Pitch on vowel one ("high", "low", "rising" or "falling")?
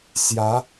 rising